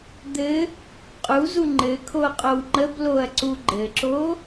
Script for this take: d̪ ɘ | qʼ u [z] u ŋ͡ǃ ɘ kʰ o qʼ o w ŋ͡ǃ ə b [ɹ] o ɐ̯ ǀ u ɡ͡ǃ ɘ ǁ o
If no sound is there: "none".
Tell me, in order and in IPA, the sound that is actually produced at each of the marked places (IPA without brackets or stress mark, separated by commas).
z, l